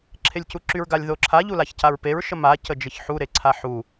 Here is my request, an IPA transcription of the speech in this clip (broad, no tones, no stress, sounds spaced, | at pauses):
ǁʰ e lʲ c u ǁ y ɹ ɡ a lʲ ð o ǁʰ a ʎ u l a ç c a ɹ p e ɹ ʃ ə m a c ə d͡ʒ ə ç ħ u ɾ e ǀʰ a ħ u